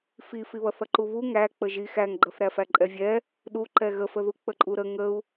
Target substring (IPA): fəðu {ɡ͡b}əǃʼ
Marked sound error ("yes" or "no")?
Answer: yes